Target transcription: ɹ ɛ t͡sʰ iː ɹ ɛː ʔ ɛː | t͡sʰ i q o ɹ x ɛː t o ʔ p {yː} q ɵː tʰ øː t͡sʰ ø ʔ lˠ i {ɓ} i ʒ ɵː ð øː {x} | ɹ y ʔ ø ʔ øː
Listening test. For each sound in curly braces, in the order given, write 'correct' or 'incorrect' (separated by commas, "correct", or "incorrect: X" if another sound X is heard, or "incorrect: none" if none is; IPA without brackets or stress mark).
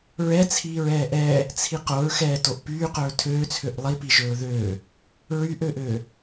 correct, incorrect: p, incorrect: none